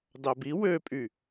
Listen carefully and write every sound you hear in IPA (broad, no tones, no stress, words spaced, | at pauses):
dɑbi wøpʼy